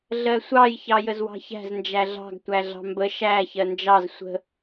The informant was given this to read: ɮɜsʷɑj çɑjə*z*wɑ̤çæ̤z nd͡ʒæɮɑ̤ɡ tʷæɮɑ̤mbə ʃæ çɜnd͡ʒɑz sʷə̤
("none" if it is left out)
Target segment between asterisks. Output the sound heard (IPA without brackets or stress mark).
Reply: z